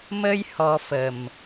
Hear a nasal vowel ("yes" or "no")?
no